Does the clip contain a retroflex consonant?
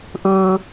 no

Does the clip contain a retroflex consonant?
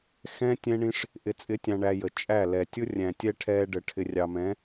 yes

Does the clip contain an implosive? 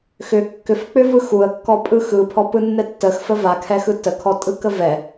no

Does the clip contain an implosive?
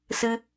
no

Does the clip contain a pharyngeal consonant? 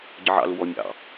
yes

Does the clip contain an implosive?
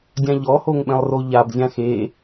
yes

